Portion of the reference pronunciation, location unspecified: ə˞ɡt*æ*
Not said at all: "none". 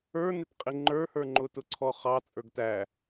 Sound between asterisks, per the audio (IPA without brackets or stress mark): æ